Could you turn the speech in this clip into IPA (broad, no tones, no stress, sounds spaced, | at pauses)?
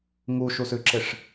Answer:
ŋ u ʃ u s ʉ ǁ ɪ ʂ